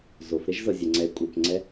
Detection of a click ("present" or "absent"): present